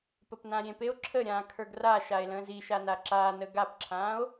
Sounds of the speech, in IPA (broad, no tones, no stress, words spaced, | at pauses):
pəpnãɾʲẽpeo̯ ǁʰəɾʲãː kʰə˞ɡraʃae̯ lə̃ːziʃa naǁaːnə ɡapǁʰãːo̯